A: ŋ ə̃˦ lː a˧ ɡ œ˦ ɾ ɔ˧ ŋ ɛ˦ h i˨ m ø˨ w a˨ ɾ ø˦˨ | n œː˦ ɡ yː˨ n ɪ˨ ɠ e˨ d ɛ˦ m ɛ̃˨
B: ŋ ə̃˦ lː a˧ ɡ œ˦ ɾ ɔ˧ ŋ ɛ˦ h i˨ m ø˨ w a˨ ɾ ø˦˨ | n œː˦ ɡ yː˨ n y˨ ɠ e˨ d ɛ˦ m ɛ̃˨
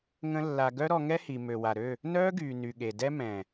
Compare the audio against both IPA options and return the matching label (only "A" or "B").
B